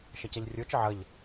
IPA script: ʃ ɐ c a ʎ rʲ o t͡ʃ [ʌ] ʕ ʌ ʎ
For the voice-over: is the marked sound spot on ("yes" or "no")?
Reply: no